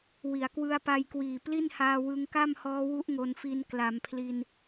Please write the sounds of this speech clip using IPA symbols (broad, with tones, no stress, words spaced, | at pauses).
wi˩˦a̯kwɯ˧a̯pa˧jkwiː˨˩ pli˥˩nhaː˧ wɯ˧ŋka˥˩mhɔː˦˥wu˦˥ʔ ŋo˧nfi˧n kla˩˦mpʰli˧n